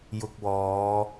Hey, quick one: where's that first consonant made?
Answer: palate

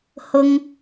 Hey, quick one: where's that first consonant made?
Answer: throat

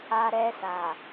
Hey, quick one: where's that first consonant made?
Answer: tongue tip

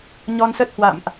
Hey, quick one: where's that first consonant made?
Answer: palate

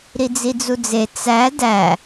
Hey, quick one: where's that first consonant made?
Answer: tongue tip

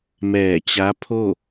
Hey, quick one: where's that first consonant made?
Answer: lips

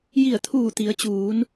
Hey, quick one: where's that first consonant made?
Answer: palate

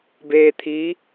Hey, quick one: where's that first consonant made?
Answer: lips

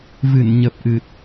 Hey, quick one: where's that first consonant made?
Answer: lips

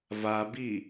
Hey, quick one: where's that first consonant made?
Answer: lips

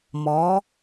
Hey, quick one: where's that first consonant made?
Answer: lips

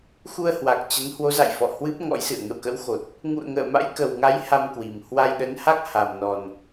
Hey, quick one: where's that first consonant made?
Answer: velum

